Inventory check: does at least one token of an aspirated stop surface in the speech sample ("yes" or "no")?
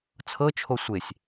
yes